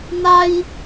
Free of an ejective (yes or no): yes